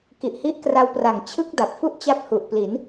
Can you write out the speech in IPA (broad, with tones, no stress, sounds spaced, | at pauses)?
k i˨˩ ʔ h i˦˥ ʔ k r a˧ w p r a˨˩ ŋ t͡ɕʰ ɯ˥˩ k̚ d a˨˩ p̚ f u˥˩ ʔ t͡ɕ a˦˥ p̚ h u˨˩ ʔ p l i˩˦ n